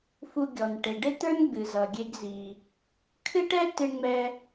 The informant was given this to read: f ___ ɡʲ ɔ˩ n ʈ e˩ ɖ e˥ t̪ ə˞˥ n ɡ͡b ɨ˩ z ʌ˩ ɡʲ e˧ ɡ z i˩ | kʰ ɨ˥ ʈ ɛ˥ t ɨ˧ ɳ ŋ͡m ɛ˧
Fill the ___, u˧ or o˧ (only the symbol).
u˧